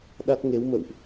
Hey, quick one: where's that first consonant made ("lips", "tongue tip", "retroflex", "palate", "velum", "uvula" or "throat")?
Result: tongue tip